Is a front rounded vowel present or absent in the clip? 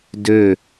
present